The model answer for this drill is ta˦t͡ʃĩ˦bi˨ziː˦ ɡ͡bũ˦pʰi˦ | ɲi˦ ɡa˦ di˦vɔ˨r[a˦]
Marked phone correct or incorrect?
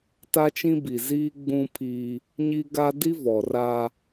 correct